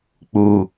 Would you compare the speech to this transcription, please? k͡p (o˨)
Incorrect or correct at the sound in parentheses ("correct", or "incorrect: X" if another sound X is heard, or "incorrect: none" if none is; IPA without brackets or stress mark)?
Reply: incorrect: u˨